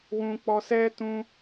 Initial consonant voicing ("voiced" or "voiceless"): voiced